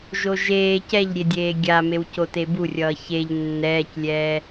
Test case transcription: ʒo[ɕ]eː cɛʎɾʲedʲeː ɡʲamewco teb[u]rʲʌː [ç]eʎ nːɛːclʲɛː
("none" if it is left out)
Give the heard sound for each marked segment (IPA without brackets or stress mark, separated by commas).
ʒ, u, ç